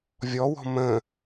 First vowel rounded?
yes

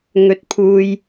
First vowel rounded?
yes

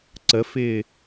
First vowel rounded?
no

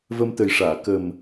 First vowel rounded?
no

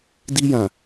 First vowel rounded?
no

